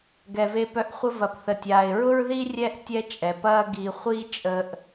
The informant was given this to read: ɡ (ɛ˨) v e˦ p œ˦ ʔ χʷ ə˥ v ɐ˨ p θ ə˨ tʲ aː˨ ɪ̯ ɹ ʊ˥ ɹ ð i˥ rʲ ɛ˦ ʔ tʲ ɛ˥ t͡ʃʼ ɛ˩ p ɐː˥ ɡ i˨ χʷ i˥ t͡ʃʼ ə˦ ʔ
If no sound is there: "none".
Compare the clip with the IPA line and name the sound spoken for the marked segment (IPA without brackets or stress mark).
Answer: ɛ˨